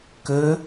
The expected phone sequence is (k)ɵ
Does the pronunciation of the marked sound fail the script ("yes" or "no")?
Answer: no